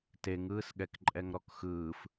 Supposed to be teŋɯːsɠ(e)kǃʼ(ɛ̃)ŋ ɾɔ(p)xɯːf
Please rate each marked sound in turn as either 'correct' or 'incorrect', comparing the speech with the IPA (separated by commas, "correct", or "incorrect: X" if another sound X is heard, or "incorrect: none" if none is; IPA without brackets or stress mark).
incorrect: ɛ, incorrect: ɛ, incorrect: k